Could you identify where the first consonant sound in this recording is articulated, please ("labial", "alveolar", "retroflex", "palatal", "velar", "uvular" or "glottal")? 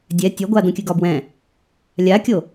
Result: alveolar